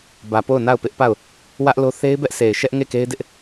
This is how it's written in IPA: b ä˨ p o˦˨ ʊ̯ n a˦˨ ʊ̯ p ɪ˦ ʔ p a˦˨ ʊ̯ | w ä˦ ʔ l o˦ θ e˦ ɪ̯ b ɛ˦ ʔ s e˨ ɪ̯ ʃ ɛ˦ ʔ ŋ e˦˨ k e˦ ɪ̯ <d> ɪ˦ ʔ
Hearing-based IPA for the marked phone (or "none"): d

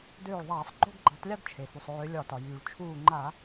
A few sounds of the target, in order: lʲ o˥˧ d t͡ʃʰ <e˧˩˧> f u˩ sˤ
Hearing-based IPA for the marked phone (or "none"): e˩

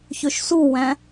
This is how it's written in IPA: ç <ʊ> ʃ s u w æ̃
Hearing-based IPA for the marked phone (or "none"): ɵ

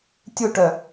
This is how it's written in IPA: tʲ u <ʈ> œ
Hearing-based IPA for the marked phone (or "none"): ʈ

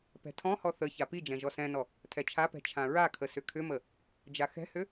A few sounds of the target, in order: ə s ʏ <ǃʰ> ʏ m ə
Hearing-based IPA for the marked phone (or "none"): kʰ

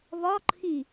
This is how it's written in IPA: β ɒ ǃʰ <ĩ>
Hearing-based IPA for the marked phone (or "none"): ĩ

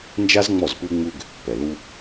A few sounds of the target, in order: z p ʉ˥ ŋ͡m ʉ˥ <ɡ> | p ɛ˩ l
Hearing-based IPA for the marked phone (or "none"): ɡ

